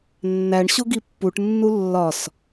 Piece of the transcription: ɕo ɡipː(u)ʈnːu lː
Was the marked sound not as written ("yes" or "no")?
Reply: no